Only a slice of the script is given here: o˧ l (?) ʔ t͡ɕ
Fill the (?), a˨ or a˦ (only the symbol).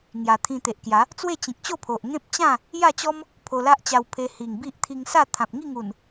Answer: a˦